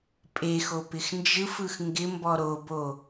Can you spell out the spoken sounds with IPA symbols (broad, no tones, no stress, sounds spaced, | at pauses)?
pʼ e x o p ɪ x n d͡ʒ ɯ f ɯ x ŋ ɡ ɪ m b ɔ ɾ o b o